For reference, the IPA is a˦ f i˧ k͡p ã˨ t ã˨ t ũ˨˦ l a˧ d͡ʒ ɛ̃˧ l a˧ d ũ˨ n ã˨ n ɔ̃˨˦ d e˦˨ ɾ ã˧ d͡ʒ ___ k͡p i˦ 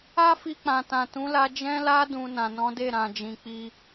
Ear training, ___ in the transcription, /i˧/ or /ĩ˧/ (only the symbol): ĩ˧